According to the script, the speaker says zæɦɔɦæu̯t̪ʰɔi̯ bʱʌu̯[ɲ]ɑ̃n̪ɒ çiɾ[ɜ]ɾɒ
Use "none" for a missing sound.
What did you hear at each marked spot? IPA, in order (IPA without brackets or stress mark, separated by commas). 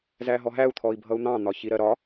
n̪, ɜ